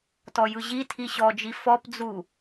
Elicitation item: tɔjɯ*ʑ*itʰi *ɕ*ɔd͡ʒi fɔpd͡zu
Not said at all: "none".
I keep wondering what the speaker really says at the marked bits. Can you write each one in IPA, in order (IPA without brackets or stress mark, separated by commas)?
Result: ʑ, ɕ